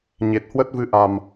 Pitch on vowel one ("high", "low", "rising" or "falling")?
low